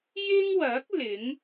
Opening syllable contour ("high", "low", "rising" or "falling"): high